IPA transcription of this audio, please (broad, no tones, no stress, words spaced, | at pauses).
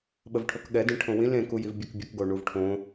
ɓəvʈʰokɠɛdĩ ʈʰõwĩl ẽkuj ivbʲekbʲək ɡoɳuvʈʰõ